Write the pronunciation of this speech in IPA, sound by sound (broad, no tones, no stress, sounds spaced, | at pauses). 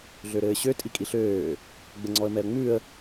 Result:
ɮ ø ɾ ɘː ɕ ø tʼ i kʼ i ɬ øː | ɡ͡b ɘ ŋ͡ǀ ɔ ə̯ m ɛ ə̯ ŋ͡m ʉ ə̯